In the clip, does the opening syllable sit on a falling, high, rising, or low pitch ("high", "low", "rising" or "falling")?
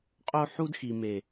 high